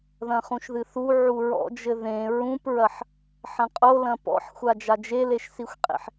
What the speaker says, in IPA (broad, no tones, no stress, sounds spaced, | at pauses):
ð ɐ̃ χ ũ ʃ ð ɨ θ u ʕ u ɹ ɔ̰ d͡ʒ ɘ ð ẽ ɹ ũ p ɹ ɐ ħ | ħ ɐ̃ qʼ o l ɐ̃ p ɔ̰ ħ xʷ a d͡ʒ a d͡ʒ e l e ʃ s i xʷ qʼ ḛ ħ